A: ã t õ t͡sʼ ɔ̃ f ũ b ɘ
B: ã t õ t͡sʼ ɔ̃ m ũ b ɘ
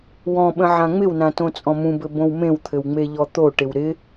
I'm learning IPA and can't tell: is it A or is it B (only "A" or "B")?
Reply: B